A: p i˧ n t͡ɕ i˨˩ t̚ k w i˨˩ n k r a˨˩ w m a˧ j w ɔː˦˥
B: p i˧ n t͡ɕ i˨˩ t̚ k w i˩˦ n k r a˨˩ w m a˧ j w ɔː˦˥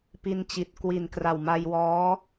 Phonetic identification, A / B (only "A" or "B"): A